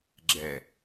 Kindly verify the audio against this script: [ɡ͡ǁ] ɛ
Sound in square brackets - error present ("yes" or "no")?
no